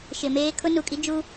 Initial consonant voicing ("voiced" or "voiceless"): voiceless